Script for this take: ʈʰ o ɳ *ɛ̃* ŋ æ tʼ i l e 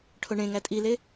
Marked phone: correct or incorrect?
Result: incorrect